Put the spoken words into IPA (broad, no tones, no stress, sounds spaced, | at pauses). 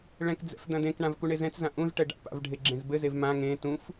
ɭ ɛ̃ k d͡z ɛ̰ f d ɐ̃ d ẽ k ɳ ã v k u ɳ e z ɛ̃ t͡s z ã ʔ ũ z ʈ ɛ ɖ a̰ p a̰ v ɖʱ e ɡ͡ǁ ẽ z b ɘ z e v m ã ŋ ẽ t ũ f